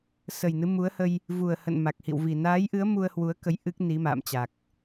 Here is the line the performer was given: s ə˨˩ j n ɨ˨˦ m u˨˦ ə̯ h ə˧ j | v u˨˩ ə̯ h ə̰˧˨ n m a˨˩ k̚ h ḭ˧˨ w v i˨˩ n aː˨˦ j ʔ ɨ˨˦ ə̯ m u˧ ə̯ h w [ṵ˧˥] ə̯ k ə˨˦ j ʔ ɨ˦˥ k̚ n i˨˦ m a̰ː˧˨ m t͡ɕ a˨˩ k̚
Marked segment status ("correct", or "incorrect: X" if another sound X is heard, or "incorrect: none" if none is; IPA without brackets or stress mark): incorrect: u˨˦